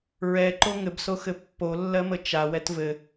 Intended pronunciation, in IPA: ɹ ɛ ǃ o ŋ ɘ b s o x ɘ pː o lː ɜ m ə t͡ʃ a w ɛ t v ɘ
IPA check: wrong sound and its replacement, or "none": none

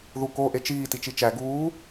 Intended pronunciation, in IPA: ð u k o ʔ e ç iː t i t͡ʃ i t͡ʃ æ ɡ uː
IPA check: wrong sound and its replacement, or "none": ç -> t͡ʃ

